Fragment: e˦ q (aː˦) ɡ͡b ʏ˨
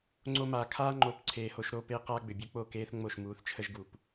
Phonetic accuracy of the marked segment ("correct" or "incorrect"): correct